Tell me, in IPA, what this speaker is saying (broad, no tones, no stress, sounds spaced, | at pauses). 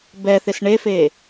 b ɛ θ ɪ s ɳ e f e